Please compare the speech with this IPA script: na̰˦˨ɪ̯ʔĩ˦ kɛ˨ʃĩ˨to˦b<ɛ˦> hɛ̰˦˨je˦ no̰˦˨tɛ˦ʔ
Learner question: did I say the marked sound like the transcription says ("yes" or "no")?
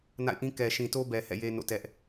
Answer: no